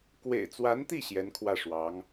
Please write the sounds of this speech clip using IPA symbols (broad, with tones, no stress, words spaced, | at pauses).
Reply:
kwḛ˨˩ɪ̯ t͡swa˧˥nt̪i˥˩ ɕjɛ˧˥nkʰwä˥˩ʂwɑ˧˥ŋ